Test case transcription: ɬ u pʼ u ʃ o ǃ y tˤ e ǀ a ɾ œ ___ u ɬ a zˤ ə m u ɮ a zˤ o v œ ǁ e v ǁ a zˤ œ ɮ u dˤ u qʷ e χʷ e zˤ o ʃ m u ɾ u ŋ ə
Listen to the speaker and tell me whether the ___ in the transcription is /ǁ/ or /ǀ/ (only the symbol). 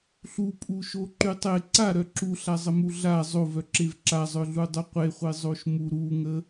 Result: ǁ